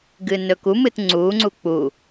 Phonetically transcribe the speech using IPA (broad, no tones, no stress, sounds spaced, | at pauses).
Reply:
ɡ ɨː n ɵ k u m ɨ t ŋ͡ǀ uː ŋ͡ǀ u k͡p u